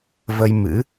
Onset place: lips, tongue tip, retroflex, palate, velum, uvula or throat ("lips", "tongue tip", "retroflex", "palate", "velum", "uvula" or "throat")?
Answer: lips